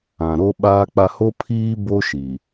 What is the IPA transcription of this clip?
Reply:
ã˨ ɾo˦ɓaː˦k͡pa˦ ho˦ pʰiː˦ bo˦ʃi˨

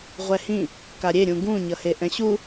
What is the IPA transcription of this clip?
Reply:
ʁʷɛhĩ | kaɾʲe ɾʲũɡũ ɲʌheʔɛ̃ɕu

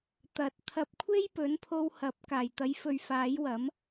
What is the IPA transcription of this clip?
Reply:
t̪ɐ˨˥t̚t̪ʰɐ˧p̚ kʷʰe˥jpɵ˨˥npʰo˧whɐ˨˥p̚ kaː˨˩jt̪ɐ˨˥jfɵ˨ɥ faː˨˥jwɐ˨˥m

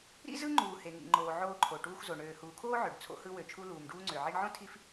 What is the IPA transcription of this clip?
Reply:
ɾḭ˥zɯ˥ ŋ͡ǃuː˩ he˩ŋḭ˩ŋ͡ǃoː˩ ʕoː˧ǃʰo˩ʈuː˧xzo˩ ɳøː˩huː˩kʰoː˥ ʕø˩ɖt͡sʰo̰˧hɯ˧ wø˩t͡ʃʰu˧ luː˩mɖuː˧ŋ͡ǀø˩ ʕi˧ɳʕõ˥ tʰi˥f

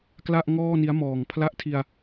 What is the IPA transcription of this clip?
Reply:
kla˥˩ʔ ŋɔː˥˩ni˦˥a̯ mɔː˨˩ŋ pʰla˦˥ʔtʰi˧a̯

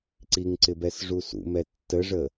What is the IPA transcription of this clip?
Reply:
ǀiŋǀɪbɛs ʐusṵmɛ tːəʐə

